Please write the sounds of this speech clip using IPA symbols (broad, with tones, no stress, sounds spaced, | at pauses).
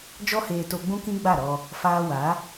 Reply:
d͡ʒ ɔ˧ h eː˨ t o˧ ɡ͡b ũ˦ k ĩ˦ ɡ͡b a˦˨ ɾ ɔ˧ | f aː˧ w a˨˦